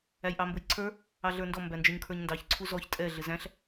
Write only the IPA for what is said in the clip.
æ j ʔ ɑ m b ʊ j ǀʰ ə˞ | ɑ ɮ ə˞ n d ɔ m b æ n d͡ʒ ə˞ ɲ kʰ ə˞ ɲ n d ɑ ç ǀʰ u z ɔ ç tʼ ɛ ɮ ɪ z æ̃ ɬ

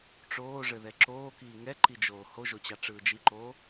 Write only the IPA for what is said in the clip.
ʈ͡ʂ oː ʐ ɘ ð ɛ ǁ oː k iː ŋ ɛ ǃ i d͡ʒ oː h o ʒ o t͡ɕ ɑ ʈ͡ʂ ɯː d͡ʒ i ǃ oː

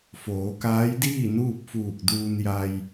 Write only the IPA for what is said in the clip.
f oː˩˧ k aː˧˥ j d iː˥˨ n uː˥˨ p̚ f uː˧˩ k̚ d uː˧ n j a˧ j

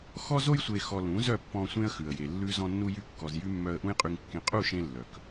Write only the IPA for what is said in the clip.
x ɔ˧ z o˧ j sʷ e˨ x ɔ˨ l ũ˨˦ z œ˦˨ pː ɔ̃˧ sʷ ẽ˦ ə̯ x ʉ˨ ə̯ j e˨ lː ʉ˦ z ɔ̃˧ nː u˧ j y˧ kː ɔ˨ z j y˦ mː œ˧ ə̯ ʔ ũ˦ j qʼ y˧ ŋ kː ẽ˧ qʼ u˦˨ ʃ ẽ˧ lː œ˨ k

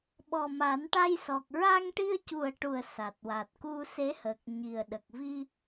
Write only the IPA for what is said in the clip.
ɓ ɔ˨˩ m a˨˩˦ n ʈ a˧ j s ɔ˨˩ k̚ ɹ a˧ ŋ ʈ i˧ ə̯ c u˨˩ ə̯ ʈ u˨˩ ə̯ s a˨˩ t̚ w a˨˩ t̚ k u˧ s e˧˥ h əː˨˩ k̚ ɲ i˨˩ ə̯ ɗ ə˨˩ k̚ v i˧

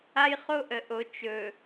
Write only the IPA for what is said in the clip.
a˦ j χ o˦ ʔ ə˨ ʔ o˨ t͡ʃ ɵ˨

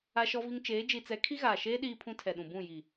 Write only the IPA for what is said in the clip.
a˦ ʃ ɔ˦ v i˦ ŋ t͡ʃ eː˨˦ d͡ʒ i˨ t͡s ɛ˨˦ kʰ i˦ ɣ aː˨ ʃ eː˦ ɗ iː˦ pʰ ũ˦ tʰ ɛ˨ ɗ ũ˨ b ũ˦˨ j i˨

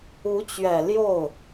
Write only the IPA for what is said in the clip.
u˧˥ t͡ɕ ɥ ɛ˨˩ l j o˥˩ ʊ̯

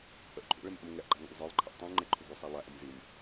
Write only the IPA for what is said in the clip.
ʔ ə ʔ ǃʰ ṵ ɭ ɪ m ʔ ə̃ m ŋ ɛ ʔ ɡ͡ǃ ɑ ŋ ṵ lˠ zˤ ə˞ lˠ ǃʰ ə ʔ tˤ ũ ŋ͡ǃ ɪ ǃʰ u ɡ u sˤ æ lˠ æ ʔ ʊ m z i m

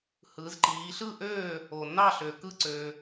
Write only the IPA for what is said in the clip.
h ɯː˩˧ z ǃ iː˩˧ ɬ ɯ˥˨ ʔ øː˥˨ | o˨˩ nː ɑ˥˨ ɬ ø˨˩ k ɯ˥˨ ǀ øː˧

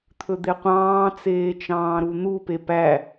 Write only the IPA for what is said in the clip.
t̪ʰ ɵ d̪ e qʷ ɑ̃ː t͡s eː t͡ʃ ɑ̃ː ɾ u n̪ u p e p æ

